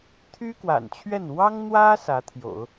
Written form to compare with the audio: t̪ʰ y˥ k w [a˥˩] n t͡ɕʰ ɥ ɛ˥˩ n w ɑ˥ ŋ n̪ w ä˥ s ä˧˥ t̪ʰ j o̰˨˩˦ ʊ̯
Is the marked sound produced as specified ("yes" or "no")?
no